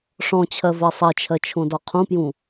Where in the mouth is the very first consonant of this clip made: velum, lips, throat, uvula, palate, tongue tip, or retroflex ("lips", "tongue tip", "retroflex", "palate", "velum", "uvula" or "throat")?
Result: retroflex